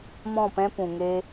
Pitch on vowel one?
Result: falling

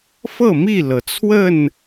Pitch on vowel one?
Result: falling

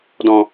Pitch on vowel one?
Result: low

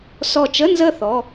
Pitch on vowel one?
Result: falling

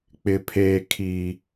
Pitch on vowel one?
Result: high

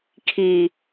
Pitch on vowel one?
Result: low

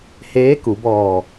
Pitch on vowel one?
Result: rising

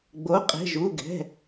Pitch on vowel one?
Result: rising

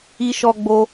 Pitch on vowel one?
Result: high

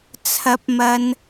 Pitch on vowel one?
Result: rising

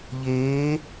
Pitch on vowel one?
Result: rising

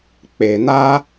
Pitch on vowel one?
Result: low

